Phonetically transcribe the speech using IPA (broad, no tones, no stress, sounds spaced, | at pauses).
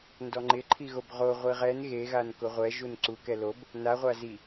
n d ɔ ŋ͡ǃ ɪ ǃʰ i ɣ o b ʁ o ʁʷ i ʁ ɛ n ɣ e ɣ a n k ʊ ʁʷ ɛ ʒ u n ǀ u k ɛ l o b | n a ʁʷ a z i